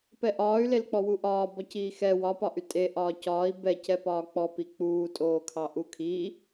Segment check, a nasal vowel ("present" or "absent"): absent